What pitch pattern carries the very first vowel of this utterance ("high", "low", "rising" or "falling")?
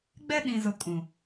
high